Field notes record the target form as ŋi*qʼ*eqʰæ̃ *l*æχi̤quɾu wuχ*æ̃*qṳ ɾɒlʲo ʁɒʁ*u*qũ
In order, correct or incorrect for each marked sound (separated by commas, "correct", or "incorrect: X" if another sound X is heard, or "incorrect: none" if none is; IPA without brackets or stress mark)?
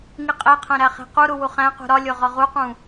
correct, incorrect: ɾ, correct, correct